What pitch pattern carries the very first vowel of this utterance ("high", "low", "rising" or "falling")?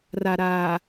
low